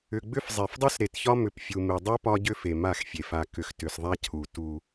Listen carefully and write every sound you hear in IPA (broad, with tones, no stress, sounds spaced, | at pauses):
ʏ˨ ɡ͡b ʏ˦ f zˤ e˨ f dˤ u˦ s ɾ e˨ t ç ɒ˦ m ʏ˨ p fʲ u˨ m e˨ dˤ e˦ p ɒ˦ ɟ ʏ˦ f e˨ m a˦˨ x fʲ e˨ f a˨ k ʏ˨ x t ʏ˨ s ðˤ a˦ cʰ u˨ t u˦